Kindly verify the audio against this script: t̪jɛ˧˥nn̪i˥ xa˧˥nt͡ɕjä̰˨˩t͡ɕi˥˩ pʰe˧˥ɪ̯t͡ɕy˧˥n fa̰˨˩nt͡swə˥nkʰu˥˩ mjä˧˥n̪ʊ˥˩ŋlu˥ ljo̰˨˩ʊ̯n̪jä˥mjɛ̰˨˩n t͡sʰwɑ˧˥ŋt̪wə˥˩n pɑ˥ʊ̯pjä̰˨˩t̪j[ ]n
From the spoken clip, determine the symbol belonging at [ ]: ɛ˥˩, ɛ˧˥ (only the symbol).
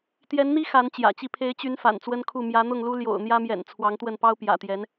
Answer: ɛ˧˥